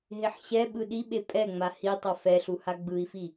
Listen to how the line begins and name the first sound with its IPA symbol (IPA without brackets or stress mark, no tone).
ɦ